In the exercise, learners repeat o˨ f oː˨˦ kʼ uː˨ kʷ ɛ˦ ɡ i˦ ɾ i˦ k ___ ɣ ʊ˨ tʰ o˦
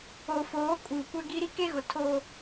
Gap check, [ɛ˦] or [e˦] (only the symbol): e˦